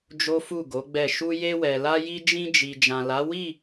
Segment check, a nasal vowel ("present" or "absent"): present